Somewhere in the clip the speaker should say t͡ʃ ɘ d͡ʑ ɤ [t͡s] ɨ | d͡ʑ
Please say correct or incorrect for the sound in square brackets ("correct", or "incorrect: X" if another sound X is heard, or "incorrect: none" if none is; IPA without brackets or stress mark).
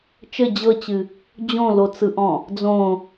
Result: incorrect: t͡ɕ